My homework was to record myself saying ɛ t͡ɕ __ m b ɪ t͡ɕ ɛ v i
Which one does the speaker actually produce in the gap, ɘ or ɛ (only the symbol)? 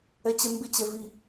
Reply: ɛ